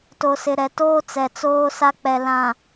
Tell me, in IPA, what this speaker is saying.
t o˨ s ɪ˨ ɾ ɛ˨ t oː˦ t͡s ɛ˨ t͡s oː˦ s a˦ k͡p ɛ˨ l ã˨

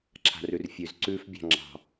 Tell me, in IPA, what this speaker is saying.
ǁʰ a̤ r ʉ r fʲ ʉ z ǀ ʉ f bʲ ɑ̤ ŋ͡ǁ ɑ̤

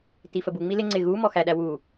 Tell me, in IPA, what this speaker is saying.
t i f ə b u ŋ͡m i l ɪ ŋ͡ǀ ɪ ɣ u m ɔ x æ ɗ æ w u

